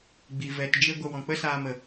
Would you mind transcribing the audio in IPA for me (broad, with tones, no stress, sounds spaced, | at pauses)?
ɡ͡b i˨ v ɛ˨ t d͡ʒ e˧ ɡʷ ə˧ w ɔ̃˨ k͡p ə˦ s aː˧ m ə˨